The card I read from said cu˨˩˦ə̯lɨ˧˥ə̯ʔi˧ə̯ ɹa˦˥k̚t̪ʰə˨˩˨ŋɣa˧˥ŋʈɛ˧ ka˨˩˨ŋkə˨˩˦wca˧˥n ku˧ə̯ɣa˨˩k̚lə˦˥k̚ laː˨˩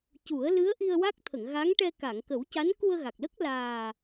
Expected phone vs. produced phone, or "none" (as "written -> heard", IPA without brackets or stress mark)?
ɹ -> w